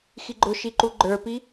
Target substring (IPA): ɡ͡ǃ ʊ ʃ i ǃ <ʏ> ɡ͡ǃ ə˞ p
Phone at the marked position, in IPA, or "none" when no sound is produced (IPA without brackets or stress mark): u